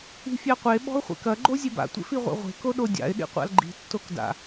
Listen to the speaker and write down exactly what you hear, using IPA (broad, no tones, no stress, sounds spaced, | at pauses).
i̤ fʲ a qʷ e ɓ ɔ̤ ʊ̯ χʷ ḛ k ɐ ɡ͡ǃ o zʲ e b a̰ tʷ ḛ f i ʁʷ ḛ ʁʷ e̤ k o ɗ o dʲ a̰ ɪ̯ ɗ ḭ qʷ a̰ l ɡ͡ǃ i̤ tː o k d a̰